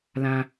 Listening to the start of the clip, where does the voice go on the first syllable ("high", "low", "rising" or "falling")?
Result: high